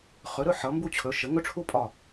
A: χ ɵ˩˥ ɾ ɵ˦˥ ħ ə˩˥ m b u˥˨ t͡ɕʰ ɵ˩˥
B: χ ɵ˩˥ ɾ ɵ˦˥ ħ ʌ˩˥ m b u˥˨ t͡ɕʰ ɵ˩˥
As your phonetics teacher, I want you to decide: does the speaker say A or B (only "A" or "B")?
B